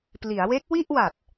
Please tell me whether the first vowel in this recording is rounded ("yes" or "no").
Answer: no